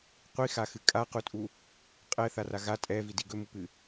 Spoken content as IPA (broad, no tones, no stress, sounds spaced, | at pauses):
qʷ i x a x ɨ kʼ a q u tʼ u | qʼ ɛ θ a r a ɣ a tʼ ɛ v i d i ɡ ɵ m u p ɨ